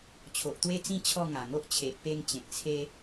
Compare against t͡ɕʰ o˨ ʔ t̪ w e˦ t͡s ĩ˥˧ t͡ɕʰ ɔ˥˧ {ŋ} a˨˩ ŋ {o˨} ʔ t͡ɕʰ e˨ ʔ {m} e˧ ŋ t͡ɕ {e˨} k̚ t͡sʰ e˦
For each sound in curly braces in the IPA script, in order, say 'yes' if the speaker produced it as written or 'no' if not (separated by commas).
yes, no, no, no